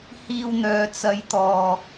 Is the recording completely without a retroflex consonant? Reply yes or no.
yes